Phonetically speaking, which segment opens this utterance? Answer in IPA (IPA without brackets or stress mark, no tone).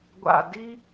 ɡʷ